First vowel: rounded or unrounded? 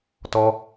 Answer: rounded